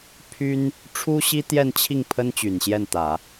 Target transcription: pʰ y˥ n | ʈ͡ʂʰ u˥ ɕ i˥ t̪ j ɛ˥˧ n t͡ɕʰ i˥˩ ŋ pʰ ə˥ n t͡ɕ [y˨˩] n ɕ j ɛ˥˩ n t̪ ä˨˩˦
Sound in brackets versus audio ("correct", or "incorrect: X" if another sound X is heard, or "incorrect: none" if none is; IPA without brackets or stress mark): correct